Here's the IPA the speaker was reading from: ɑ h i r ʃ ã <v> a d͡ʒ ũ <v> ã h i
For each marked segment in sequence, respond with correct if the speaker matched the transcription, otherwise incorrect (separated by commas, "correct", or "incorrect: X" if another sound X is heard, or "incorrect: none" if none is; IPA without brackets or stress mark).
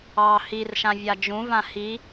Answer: incorrect: vʲ, correct